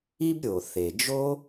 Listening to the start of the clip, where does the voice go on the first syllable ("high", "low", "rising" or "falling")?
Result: high